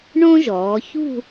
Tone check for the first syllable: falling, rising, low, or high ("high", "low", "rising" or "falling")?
high